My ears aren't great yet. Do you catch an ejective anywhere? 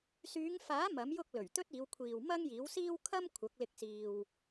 no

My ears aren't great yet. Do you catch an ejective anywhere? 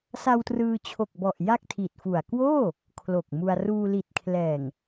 no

